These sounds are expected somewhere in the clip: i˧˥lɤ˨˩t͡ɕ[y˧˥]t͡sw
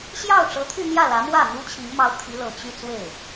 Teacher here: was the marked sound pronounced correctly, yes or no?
no